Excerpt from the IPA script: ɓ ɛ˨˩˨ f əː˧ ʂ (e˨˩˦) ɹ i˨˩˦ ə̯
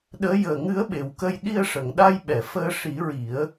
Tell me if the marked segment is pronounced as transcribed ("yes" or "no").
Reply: no